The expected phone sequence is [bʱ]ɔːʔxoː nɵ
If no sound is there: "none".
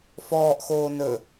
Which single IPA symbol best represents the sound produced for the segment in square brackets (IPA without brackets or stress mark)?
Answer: f